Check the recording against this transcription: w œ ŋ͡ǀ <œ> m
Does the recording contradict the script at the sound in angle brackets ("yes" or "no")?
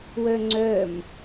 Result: no